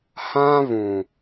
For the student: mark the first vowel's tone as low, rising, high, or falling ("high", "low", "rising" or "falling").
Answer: high